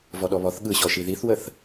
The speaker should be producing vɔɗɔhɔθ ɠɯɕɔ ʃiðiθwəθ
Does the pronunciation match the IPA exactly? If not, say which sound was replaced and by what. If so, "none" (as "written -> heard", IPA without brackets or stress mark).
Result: h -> β